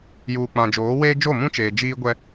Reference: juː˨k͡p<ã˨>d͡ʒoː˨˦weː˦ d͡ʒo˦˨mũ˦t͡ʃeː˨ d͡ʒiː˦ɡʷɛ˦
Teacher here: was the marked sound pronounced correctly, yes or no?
yes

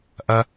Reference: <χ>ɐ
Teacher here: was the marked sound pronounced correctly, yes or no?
no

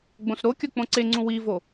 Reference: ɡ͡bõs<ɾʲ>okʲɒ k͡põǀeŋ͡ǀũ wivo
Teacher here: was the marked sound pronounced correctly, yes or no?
no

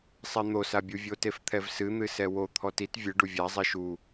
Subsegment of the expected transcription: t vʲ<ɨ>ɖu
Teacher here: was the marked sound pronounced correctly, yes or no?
yes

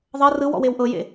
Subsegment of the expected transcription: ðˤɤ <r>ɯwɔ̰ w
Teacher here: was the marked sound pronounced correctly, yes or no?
yes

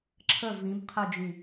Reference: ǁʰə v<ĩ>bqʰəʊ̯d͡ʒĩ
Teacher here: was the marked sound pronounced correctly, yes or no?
yes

